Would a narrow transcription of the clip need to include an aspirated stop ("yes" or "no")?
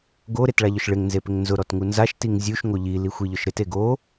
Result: no